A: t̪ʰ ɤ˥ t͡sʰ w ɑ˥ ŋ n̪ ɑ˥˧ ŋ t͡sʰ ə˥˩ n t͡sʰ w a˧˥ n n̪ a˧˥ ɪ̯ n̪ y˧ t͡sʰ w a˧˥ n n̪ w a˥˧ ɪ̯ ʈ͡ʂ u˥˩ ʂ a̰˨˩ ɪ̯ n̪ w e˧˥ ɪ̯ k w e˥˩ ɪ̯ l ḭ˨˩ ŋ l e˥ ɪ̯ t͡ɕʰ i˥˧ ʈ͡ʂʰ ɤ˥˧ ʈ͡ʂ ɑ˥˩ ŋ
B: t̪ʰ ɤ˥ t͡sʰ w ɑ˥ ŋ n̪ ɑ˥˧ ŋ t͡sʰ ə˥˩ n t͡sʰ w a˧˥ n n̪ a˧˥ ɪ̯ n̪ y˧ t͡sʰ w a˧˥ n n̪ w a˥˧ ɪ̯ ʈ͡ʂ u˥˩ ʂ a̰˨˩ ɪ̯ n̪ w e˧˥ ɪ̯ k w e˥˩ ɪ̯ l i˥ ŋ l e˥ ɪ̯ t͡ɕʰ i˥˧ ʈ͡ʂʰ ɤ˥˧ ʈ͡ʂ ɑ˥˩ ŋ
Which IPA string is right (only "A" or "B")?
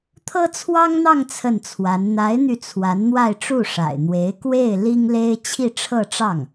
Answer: B